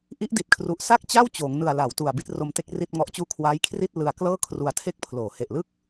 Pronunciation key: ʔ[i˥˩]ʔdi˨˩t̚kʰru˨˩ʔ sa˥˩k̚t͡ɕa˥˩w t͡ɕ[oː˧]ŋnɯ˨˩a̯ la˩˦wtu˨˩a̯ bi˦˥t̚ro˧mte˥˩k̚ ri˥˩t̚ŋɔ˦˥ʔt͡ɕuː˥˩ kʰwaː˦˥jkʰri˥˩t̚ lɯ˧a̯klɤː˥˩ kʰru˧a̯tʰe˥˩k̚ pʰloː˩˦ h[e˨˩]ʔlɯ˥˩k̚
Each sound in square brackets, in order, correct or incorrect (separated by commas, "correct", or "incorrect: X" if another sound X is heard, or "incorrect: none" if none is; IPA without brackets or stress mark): incorrect: i˦˥, incorrect: oː˩˦, correct